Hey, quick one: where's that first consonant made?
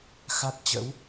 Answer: velum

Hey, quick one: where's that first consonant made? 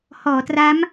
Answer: throat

